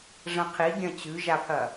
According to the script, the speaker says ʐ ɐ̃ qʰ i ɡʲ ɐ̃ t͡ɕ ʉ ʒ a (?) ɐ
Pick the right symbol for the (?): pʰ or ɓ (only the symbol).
pʰ